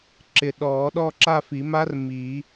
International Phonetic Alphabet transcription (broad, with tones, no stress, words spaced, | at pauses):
ǁɪ˨ɗɔː˨˩˦ ɗɔ˥˧ǁa˥˧fi˨˩˦ma˦˥r miː˨˩˦